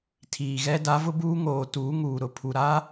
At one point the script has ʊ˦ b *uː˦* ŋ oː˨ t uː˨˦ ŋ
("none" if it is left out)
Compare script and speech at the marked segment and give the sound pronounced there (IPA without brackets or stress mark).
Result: uː˦